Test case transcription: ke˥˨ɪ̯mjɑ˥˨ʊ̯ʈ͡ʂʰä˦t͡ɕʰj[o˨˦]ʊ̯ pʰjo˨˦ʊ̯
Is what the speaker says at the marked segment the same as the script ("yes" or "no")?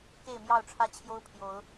no